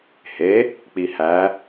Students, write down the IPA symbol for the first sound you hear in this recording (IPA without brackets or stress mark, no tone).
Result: h